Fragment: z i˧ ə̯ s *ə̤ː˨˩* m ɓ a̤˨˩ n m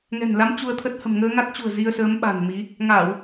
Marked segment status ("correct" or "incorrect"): incorrect